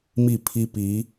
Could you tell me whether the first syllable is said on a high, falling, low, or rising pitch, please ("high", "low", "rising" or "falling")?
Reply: falling